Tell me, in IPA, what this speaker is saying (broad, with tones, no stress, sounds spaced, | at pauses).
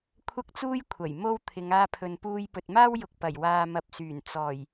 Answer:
kʷʰ ɐ˥ k̚ t͡s uː˥ j kʷʰ ɐ˨˩ j m o˥ w t̪ʰ ɪ˨˧ ŋ aː˧ pʰ ɵ˨ n p uː˧ j p ɵ˨ t̚ m aː˥ w j ʊ˨ k̚ p ɐ˨˩ j w aː˨ m ɐ˨ p̚ s yː˨˩ n t͡s ɔː˨˩ j